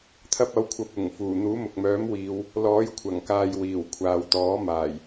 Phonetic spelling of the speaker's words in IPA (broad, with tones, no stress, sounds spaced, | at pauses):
t̪ʰ ɐ˧ p̚ ɐ˨˥ w kʷʰ ɐ˧ p̚ ʊ˨˩ ŋ f uː˨˩ n̪ uː˨˥ m ʊ˨ k̚ m œː˨˥ m w iː˨˧ w | l ɔː˨˥ j kʷʰ ɐ˨˩ ŋ k aː˨ j w iː˨˩ w kʷʰ aː˨ w t̪ ɔː˨˥ m aː˨˩ j